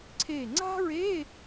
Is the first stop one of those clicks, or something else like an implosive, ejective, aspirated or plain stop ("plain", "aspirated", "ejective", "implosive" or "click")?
click